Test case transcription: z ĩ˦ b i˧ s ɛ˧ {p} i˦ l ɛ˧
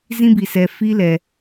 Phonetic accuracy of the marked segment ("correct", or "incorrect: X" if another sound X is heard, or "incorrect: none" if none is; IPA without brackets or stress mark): incorrect: f